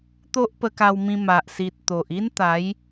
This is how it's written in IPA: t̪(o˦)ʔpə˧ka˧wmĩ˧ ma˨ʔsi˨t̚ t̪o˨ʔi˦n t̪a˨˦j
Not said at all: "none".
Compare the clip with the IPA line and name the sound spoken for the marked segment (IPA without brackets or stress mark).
o˦